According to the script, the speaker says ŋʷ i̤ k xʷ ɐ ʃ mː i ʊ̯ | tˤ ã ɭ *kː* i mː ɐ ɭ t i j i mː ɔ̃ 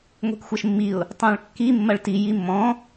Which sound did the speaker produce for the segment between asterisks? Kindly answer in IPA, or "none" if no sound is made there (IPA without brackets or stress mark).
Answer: kː